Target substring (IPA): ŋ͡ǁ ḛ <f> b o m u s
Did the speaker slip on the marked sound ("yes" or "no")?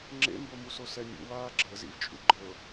yes